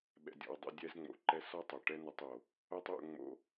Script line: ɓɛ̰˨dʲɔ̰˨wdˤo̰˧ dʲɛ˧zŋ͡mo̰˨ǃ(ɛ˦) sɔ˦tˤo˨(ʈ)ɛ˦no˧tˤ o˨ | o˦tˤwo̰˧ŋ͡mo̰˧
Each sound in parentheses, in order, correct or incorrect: incorrect: ɛ˧, correct

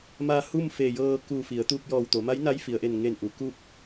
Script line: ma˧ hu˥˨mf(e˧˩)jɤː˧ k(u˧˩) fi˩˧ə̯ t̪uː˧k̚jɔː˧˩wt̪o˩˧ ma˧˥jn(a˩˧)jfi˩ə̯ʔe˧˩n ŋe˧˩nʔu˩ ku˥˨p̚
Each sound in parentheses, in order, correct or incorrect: correct, correct, incorrect: a˧˥

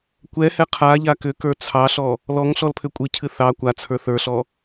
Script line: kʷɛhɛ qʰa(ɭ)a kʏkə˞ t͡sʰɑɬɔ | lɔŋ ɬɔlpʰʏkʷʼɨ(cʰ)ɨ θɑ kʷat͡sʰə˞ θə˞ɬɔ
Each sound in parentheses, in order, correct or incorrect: incorrect: ʎ, correct

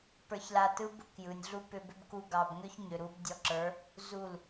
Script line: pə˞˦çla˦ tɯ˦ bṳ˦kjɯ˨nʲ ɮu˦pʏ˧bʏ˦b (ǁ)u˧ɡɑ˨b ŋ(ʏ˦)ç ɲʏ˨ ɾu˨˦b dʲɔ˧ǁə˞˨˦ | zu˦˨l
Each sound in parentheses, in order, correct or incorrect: incorrect: k, correct

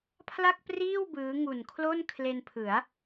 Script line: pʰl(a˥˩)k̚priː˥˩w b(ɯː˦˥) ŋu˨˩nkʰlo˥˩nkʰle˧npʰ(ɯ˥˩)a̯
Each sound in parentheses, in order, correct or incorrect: correct, correct, incorrect: ɯ˩˦

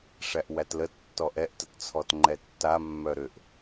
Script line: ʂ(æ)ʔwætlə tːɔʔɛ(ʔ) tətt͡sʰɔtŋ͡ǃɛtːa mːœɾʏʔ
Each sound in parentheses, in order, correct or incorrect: correct, correct

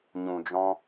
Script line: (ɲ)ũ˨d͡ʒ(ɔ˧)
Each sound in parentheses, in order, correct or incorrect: correct, incorrect: ɔ̃˧

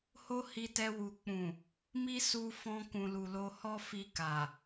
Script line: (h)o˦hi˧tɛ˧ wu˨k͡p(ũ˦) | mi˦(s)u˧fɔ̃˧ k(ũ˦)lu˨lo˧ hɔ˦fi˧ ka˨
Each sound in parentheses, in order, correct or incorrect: correct, incorrect: ũ˨, correct, incorrect: ũ˨

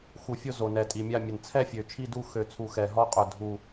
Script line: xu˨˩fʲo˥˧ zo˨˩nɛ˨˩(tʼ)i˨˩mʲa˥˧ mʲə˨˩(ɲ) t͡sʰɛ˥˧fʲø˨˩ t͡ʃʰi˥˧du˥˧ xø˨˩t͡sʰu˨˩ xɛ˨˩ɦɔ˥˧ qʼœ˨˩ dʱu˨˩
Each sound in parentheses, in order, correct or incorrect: correct, incorrect: n

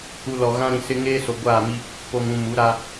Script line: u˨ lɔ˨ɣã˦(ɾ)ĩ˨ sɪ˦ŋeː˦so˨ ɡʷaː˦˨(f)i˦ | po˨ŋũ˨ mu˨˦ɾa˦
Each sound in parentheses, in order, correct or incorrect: correct, incorrect: m

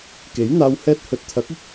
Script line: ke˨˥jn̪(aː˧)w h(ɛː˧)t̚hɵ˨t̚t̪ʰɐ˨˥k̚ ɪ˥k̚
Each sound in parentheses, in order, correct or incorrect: correct, correct

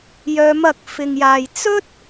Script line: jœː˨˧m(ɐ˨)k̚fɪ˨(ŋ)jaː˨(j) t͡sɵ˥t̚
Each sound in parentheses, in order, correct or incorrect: correct, correct, correct

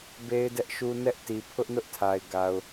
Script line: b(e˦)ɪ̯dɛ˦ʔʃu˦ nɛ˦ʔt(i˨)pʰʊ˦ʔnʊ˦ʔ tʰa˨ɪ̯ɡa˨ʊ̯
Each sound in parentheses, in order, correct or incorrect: correct, correct

